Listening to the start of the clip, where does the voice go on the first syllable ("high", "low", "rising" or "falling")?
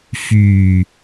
low